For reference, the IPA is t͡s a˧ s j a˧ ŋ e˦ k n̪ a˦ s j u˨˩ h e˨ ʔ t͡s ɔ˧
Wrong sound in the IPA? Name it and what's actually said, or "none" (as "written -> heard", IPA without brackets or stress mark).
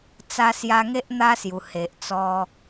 k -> ʔ